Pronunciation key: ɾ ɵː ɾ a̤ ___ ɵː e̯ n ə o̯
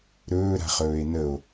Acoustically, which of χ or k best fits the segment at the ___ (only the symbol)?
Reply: χ